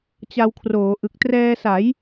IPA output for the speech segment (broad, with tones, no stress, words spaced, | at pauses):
t͡ɕa˧wkʰroː˩˦ ʔɯ˨˩k̚trɛː˧sa˩˦j